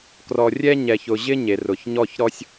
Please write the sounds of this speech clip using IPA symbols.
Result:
k r ɔ˨ rʲ ɛ˦ ɲ ɛ˨ ç ʊ˨ ʑ ɪ˦ ɲ e˨ r ʊ˨ ç ɲ ɔ˦˨ ç ɾ ɔ˦ sʲ

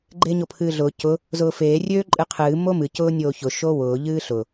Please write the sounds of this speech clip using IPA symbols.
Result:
ɡ͡ǃ eː ɲ o pʰ ɨː ɮ ʊː c ʊ | z ʊː f eː rʲ øː ǃʼ ɨ qʰ ɨː m o m ɨ c ʊː nʲ oː ç ʊ ʃ o w ʊː ʎ ɨː ɬ ʊ

